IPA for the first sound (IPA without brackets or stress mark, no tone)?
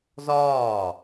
z